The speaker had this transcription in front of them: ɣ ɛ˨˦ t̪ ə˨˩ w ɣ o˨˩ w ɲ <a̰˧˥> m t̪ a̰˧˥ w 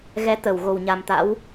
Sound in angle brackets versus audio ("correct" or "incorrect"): incorrect